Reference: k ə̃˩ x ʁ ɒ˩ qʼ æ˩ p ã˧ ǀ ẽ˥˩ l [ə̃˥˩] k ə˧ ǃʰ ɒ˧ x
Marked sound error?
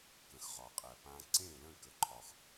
no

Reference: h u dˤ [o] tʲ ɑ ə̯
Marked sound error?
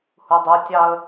yes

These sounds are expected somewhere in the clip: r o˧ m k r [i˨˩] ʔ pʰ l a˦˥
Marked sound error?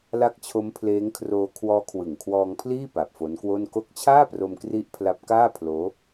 yes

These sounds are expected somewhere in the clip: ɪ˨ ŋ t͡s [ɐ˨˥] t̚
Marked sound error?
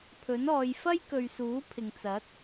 no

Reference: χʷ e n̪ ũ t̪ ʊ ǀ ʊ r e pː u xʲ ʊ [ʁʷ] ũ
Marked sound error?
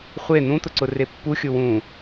yes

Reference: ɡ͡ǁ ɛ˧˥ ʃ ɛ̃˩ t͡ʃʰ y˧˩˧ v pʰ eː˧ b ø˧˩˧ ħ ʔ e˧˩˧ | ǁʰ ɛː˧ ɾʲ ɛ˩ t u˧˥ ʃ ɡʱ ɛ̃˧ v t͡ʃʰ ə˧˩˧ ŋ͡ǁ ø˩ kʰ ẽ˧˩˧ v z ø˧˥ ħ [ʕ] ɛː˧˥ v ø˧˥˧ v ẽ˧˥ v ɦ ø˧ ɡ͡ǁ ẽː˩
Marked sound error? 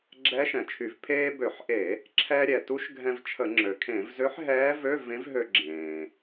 yes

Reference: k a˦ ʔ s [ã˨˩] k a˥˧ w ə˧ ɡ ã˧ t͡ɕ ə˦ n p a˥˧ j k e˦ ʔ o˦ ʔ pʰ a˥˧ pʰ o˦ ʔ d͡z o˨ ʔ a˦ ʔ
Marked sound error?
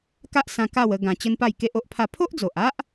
yes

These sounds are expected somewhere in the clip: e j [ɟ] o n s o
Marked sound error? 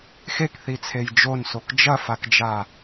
yes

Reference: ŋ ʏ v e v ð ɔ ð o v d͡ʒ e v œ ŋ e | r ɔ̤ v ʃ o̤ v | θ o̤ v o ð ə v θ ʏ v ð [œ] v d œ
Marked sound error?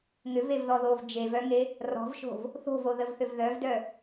no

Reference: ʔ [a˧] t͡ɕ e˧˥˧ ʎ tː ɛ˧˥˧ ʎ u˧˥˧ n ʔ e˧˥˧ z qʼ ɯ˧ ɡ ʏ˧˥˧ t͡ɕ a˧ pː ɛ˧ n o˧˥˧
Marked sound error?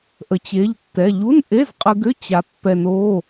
yes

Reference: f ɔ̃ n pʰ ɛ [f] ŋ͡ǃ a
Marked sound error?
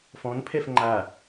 no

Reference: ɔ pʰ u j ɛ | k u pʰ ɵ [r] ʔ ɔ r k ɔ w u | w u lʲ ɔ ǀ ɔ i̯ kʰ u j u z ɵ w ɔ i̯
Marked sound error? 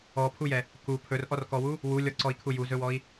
no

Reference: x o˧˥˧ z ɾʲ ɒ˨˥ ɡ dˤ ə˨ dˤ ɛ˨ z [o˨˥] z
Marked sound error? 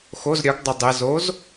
no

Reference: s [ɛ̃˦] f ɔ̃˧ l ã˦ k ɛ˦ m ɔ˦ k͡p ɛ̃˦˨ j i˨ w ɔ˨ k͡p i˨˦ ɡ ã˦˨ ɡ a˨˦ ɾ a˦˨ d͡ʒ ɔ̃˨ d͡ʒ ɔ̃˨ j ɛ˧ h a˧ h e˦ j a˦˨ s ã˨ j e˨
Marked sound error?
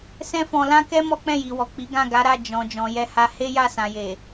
no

